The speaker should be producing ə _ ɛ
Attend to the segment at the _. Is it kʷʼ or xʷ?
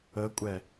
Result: kʷʼ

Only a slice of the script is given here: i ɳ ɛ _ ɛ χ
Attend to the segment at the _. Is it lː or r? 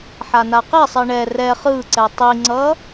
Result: r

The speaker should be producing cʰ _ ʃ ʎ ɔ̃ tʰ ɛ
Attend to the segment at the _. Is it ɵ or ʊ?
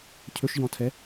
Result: ɵ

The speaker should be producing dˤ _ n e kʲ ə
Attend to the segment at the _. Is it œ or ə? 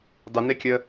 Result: ə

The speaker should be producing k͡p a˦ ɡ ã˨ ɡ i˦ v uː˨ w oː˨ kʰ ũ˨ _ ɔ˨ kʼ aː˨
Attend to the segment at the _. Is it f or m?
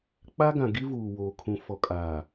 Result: f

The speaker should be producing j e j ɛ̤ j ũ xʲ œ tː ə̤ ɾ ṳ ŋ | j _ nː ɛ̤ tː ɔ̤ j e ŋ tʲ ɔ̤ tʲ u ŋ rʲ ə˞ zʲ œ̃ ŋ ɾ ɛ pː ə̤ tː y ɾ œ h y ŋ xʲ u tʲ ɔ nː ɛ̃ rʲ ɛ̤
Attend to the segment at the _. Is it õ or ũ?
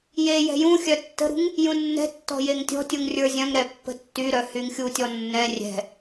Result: ũ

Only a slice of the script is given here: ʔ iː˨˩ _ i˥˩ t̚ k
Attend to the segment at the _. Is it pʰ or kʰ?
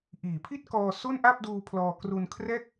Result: pʰ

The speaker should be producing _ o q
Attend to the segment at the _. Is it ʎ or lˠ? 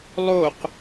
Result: lˠ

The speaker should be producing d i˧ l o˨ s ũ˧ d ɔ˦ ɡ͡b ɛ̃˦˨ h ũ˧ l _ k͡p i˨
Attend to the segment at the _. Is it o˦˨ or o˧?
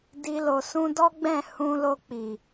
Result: o˧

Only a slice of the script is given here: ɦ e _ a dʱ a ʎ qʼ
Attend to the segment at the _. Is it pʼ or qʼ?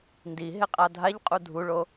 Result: qʼ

